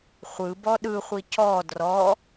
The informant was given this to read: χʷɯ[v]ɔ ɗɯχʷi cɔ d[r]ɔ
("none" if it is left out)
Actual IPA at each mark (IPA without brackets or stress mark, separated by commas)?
b, r